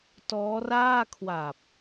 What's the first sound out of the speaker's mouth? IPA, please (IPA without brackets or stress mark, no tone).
t